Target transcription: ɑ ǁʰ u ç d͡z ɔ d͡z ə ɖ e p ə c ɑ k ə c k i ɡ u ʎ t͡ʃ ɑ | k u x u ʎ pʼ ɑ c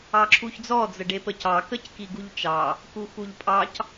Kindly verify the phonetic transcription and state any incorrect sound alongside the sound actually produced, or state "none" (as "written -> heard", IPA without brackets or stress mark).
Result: none